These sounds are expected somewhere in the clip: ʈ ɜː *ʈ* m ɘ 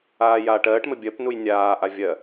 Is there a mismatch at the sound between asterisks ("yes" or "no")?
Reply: no